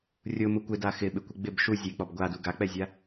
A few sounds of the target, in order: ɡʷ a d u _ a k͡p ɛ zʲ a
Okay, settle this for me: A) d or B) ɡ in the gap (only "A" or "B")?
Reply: B